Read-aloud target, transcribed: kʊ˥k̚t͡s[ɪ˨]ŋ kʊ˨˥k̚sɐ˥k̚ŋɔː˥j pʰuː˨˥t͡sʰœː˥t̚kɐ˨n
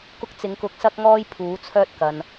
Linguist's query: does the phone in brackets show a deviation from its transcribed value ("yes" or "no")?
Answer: yes